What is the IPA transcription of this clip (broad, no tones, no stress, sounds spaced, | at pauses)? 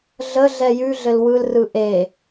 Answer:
ɮ ə ɮ ɛ j ʉ ɮ ɘ l w ɯ l r ɯ ʔ e